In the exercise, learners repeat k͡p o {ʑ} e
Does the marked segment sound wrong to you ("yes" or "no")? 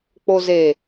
yes